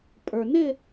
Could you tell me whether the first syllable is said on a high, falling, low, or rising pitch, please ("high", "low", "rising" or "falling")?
low